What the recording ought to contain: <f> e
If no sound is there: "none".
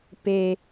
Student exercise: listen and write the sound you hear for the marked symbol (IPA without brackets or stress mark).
p